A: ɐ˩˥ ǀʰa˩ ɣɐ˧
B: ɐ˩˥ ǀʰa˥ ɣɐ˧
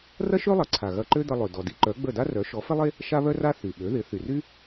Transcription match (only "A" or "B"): A